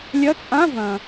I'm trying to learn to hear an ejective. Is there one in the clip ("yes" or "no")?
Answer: yes